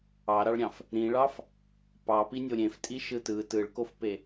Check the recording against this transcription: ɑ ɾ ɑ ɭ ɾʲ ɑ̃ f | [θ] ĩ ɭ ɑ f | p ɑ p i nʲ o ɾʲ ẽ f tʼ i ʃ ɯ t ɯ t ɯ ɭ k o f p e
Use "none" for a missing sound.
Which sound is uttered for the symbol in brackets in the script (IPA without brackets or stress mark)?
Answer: ɾ